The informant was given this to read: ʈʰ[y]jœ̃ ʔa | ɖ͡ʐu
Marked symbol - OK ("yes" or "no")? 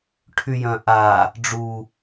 yes